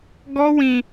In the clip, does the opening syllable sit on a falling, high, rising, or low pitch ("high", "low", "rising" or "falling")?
high